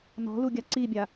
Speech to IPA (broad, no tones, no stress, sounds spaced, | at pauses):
n ɔ̤ l u ɡʲ a ǀ i bʲ a